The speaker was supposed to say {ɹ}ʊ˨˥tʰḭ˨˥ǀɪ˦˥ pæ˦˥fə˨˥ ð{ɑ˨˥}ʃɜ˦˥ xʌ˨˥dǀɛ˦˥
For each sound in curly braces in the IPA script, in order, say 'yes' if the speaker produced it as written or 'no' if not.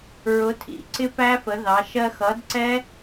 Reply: yes, yes

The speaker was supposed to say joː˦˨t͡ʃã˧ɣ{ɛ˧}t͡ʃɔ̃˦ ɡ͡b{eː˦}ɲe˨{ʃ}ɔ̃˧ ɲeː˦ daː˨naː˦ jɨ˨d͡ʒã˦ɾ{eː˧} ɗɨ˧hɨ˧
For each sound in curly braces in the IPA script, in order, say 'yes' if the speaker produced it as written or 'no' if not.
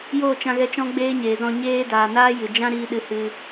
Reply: yes, yes, no, no

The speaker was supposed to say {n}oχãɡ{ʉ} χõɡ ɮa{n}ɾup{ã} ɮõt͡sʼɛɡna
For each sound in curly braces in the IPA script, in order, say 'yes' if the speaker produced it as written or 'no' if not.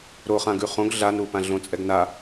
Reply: no, yes, yes, yes

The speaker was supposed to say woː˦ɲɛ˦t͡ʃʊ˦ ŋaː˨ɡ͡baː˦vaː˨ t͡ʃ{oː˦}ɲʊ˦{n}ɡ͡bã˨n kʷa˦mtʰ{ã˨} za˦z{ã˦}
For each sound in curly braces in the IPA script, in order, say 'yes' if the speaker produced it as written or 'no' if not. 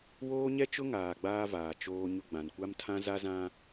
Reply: yes, no, no, yes

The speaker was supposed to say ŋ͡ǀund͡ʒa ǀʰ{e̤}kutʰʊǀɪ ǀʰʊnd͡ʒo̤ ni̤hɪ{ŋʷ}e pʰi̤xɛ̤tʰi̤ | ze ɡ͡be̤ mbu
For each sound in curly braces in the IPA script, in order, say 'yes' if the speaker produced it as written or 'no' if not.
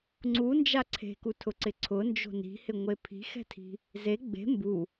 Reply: yes, yes

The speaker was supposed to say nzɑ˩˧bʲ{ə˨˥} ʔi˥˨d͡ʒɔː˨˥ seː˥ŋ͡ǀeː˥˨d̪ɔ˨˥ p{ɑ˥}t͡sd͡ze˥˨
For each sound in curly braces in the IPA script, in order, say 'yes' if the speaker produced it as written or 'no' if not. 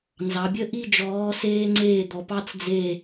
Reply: no, yes

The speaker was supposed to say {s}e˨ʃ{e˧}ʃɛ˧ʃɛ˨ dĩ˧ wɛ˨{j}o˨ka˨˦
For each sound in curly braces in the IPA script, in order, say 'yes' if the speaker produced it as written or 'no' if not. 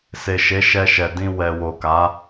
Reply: yes, no, no

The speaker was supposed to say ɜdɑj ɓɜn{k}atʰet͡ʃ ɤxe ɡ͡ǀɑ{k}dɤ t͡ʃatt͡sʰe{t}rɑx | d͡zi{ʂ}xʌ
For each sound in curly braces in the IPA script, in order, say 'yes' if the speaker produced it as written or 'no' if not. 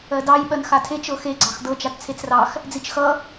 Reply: no, no, no, no

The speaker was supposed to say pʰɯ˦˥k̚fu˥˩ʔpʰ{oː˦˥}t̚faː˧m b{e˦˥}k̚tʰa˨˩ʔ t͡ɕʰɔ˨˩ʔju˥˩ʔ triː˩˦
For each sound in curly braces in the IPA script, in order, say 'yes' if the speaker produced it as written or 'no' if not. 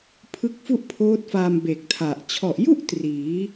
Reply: yes, no

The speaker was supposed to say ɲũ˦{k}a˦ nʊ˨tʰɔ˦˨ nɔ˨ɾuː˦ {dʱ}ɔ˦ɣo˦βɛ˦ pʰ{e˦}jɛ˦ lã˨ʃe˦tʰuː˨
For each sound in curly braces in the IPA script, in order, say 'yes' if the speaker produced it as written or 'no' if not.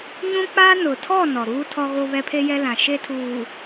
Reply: no, no, yes

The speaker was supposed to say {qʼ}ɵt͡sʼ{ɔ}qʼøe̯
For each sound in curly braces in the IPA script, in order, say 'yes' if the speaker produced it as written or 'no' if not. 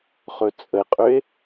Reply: no, no

